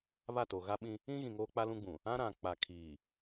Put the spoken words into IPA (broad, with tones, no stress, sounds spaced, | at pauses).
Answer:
β a˦˨ t o˨ ɣ a˦ ɓ ĩ˦ | ĩ˦ ɣ ĩ˨ ŋ oː˦ k͡p a˦ l ũ˦ ɡ͡b ũ˨ | ã˦ ɾ ã˨ k͡p a˨ kʰ iː˨